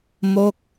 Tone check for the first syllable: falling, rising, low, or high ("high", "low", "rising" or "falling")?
falling